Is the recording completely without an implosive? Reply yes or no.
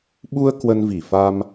no